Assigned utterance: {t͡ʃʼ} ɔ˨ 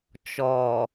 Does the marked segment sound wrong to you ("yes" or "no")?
yes